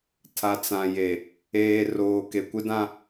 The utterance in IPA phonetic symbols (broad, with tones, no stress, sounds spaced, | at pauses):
tʰ a˨ t͡s ã˨ j e˨ | eː˨ r oː˨ k e˨ kʷ ɪ˦ d ã˦